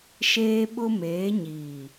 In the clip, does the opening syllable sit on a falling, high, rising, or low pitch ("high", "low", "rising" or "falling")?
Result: high